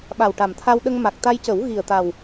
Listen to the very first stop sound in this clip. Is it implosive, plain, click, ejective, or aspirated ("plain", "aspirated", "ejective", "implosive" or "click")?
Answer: implosive